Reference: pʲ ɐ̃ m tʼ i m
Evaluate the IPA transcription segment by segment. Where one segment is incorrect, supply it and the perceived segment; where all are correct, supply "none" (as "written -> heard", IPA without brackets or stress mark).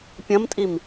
none